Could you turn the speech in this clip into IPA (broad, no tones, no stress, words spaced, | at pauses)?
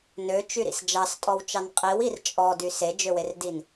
nøt͡ʃyɾḭs d͡ʒɑstʼɔwt͡ʃɑn qʼiwir t͡ʃʼɔdy sed͡ʒøwerdin